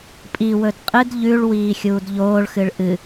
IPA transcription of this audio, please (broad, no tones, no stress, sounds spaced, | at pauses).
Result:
pʼ i w ɵ d qʼ ɨ d ʎ ʉ ɭ w iː xʲ uː d ʎ oː ɭ x ɨ ɭ ʔ ɨ